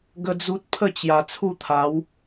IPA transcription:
ɡ ə˦ d͡z u˦ t̚ pʰ ə˥˧ t͡ɕ j a˨˩ t͡sʰ u˥˧ t̪ʰ a˨˦ w

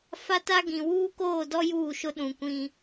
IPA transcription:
f a˦ t a˦ ɡ ĩ˨ w uː˦ k oː˦˨ d ɔ˦ j uː˦˨ ʃ ʊ˦ ɗ ũ˨ kʷ ĩ˦

